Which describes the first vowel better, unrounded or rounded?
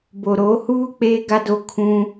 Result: rounded